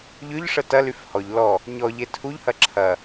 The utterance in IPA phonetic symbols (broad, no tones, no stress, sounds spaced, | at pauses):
ʎ ʏ ʎ ʂ ə t ɐ l y f h ɔ ʎ l ɔ | ɲ ɔ ʎ e tʰ u ʎ h ɐ ǁʰ ɐ